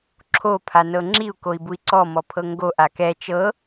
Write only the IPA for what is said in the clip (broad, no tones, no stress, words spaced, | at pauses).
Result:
ǁʰo pʰanɤŋ͡ǁiu̯ koi̯bui̯ǀɔ mɔpʰɤŋɡo ʔakɛ t͡ʃɤ